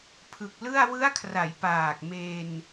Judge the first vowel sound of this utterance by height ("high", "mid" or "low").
high